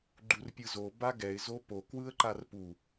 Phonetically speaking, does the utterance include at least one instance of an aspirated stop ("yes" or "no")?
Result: no